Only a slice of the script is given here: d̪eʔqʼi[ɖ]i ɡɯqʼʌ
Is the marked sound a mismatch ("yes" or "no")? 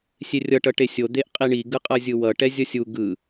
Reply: yes